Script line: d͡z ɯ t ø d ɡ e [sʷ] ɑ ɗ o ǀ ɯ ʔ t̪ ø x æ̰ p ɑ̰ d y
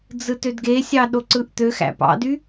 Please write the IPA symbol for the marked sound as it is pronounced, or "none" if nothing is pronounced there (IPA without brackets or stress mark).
sʲ